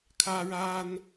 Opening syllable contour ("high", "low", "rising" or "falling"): high